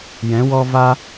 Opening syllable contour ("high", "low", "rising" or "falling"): rising